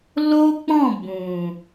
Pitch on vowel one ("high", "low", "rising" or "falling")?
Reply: high